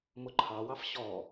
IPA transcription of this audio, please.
m ʊ ǃʰ ɑ w ɑ f ɕ ɔ

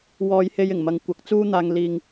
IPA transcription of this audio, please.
w ɔː˧ j h e˧ j ɪ˨˩ ŋ m ɐ˧ ŋ kʷ ɐ˨˥ k̚ t͡s uː˥ n̪ aː˧ ŋ l iː˧ ŋ

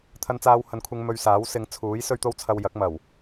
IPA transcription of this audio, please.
t̪ʰ ɐ˧ n t͡s aː˧ w h ɐ˨˧ n kʷʰ ɪ˧ ŋ m ɵ˧ ɥ s aː˨˥ w s ɪ˨˧ ŋ t͡sʰ uː˨˥ j s ɵ˥ ɥ t̪ o˥ w t͡sʰ ɐ˧ w j ɐ˨˥ k̚ m ɐ˨˩ w

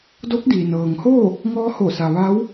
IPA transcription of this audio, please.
d o˧˥ k̚ d iː˩ n ɤː˩ ŋ h oː˥˨ | ŋ ɔː˧ h o˧˩ s a˩ ʋ a˧˥ w

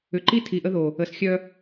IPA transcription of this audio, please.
ʏ˨ ǃ i˦ tʰ i˨ ʔ ə˦ ð o˨ | ə˨ s xʲ œ˦

